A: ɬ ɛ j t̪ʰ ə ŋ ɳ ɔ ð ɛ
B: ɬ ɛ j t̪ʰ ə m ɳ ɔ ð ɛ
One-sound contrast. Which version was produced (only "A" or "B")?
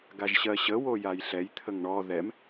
A